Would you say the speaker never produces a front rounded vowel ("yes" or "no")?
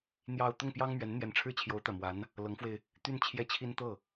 no